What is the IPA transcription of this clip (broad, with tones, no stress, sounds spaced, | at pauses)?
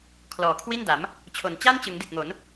kʰ l ɔː˩˦ kʰ w i˥˩ n d a˩˦ m | t͡ɕʰ o˩˦ n t͡ɕ a˥˩ n t͡ɕ ɯ˩˦ ŋ d i˨˩ t̚ ŋ o˩˦ n